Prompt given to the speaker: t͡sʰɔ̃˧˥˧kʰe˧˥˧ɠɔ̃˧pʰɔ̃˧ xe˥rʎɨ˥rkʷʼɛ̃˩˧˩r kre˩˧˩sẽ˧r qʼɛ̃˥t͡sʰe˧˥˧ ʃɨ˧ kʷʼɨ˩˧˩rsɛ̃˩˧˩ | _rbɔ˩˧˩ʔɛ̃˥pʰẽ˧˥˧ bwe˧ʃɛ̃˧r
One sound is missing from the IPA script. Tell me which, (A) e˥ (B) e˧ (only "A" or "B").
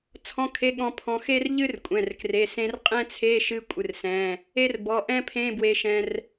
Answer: A